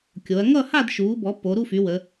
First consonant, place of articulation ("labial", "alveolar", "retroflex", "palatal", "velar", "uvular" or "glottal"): velar